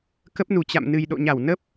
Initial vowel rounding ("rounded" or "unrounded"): unrounded